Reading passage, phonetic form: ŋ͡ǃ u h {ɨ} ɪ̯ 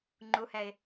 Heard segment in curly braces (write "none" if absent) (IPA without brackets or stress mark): ɛ